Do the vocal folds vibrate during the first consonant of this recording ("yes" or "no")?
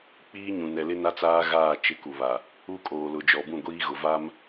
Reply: no